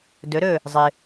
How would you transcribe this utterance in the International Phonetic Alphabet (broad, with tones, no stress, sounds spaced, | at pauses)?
d ɵ˩˥ ɾ ɵ˥˩ | zˤ ɨ˩